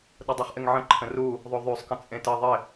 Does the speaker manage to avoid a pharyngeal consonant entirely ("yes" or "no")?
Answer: no